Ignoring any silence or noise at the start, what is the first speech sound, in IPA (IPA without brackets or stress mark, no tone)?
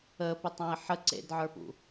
əː